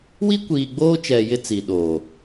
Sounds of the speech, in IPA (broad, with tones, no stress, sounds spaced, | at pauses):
w i˦ kʷ iː˨ ɡ͡b oː˦ t͡ʃ ɛ˨ j ɪ˦ t͡s i˨ ɗ oː˨